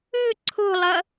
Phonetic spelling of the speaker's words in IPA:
ɯ ǀʰ o̤ lˠ ʌ

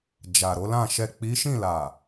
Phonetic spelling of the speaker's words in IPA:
d͡ʒ a˨ ɾ o˨˦ l ã˦˨ ʃ ɛ˨ k͡p i˨˦ ʃ ĩ˦˨ l a˨

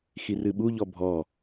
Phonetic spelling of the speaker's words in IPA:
x i r ɨ ɓ u ʎ ɔ bʱ ɔ

